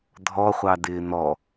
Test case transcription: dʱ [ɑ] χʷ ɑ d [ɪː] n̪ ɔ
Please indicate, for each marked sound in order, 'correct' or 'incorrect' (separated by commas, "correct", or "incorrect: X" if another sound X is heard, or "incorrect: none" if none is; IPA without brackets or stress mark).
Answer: incorrect: ɔ, correct